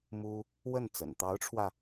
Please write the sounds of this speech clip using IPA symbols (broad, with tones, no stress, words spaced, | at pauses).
mu˥ | wə˥˩nt͡sə̰˨˩n t̪ɑ˧˥ʊ̯ʈ͡ʂʰwä˧